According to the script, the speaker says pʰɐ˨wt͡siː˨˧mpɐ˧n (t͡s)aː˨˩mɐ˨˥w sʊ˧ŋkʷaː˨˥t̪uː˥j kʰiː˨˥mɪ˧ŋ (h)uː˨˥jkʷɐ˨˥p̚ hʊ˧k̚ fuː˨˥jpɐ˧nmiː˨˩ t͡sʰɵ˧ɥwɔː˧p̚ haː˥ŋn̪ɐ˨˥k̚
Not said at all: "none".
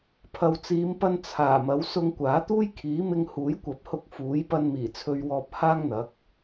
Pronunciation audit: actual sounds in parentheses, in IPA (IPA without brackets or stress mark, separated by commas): t͡sʰ, h